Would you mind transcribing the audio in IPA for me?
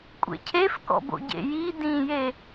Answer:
kʷʼ ḛ cʰ e f k ɔ̰ b o̰ ɟ ḛ j i d ĩ j e

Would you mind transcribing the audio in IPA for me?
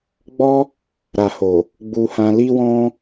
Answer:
ɡ͡b ɔ˦ | ɾ a˨ h o˨ | ɡ͡b u˧ h ã˧ l i˦ w ɔ̃˦

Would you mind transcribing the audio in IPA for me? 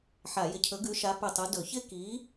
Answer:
ħ a˧˩˧ j ɪ˧˩˧ cʰ ɵ˨˥ ɡ ʉ˨˥ ʃ a˨˥ p ʉ˧˩ tˤ u˨˥ d ɵ˧˩˧ ç ɪ˦ k i˨˥

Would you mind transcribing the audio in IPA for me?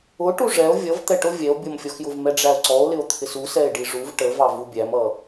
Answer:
ʊ ʈ u ʐ ɛ o̯ vʲ ʌ v t̪ ɛ ʈ ʊ vʲ ɛ o̯ bʲ ʌ m fʲ ɔ x j ʊ v m ɛ ɖ͡ʐ æ o̯ ǀ ɔ o̯ l ɪ o̯ t̪ʰ ɪ s u s ɛ e̯ ɖ i ʐ u v ʈ ə v ɑ v u bʲ æ m ʌ

